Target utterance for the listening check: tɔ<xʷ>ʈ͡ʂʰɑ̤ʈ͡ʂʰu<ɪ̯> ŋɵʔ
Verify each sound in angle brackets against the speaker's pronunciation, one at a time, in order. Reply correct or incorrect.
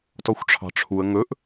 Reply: correct, incorrect

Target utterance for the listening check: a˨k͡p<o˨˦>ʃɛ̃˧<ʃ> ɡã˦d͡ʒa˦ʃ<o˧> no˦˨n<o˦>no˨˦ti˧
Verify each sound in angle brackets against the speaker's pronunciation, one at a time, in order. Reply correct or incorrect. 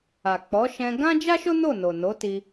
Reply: incorrect, incorrect, incorrect, incorrect

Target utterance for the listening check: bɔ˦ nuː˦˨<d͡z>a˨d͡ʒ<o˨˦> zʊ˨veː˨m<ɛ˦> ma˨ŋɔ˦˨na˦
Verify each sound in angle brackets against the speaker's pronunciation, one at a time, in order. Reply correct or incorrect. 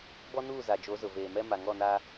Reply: incorrect, correct, correct

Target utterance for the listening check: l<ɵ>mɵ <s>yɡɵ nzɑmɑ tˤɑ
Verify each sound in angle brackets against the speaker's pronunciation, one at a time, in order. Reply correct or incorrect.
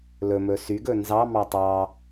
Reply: correct, correct

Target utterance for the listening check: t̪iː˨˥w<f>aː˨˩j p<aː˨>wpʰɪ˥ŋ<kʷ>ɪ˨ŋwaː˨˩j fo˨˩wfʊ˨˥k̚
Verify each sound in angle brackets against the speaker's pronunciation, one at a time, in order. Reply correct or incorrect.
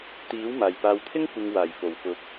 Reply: incorrect, correct, correct

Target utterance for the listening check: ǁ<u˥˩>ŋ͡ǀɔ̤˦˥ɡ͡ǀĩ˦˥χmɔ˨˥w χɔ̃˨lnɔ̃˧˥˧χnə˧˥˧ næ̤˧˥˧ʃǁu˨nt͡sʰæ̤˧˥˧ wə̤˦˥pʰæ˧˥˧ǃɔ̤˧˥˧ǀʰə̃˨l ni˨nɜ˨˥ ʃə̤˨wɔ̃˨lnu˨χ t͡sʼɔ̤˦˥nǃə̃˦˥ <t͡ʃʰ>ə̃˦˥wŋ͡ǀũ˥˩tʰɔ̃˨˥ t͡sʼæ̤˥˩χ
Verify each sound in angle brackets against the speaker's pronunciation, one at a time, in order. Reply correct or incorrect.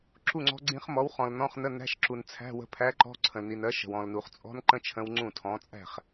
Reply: correct, correct

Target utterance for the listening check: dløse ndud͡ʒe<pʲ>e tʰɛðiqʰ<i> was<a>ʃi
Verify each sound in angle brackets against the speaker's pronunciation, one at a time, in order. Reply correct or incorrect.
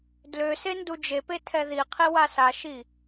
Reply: incorrect, correct, correct

